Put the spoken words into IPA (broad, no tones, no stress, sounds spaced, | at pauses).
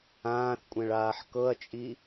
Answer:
ãː θ kʷʼ ɛ̃ ɭ aː ħ k ɤ ɐ̯ t͡ʃʼ i